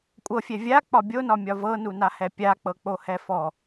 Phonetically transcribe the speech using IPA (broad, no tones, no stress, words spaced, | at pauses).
kʷʼɤfʲɛ vʲak͡pɒ bʲonɒmʲɒ vɤnunahɛ pʲak͡pɤk͡pohɛ fɔ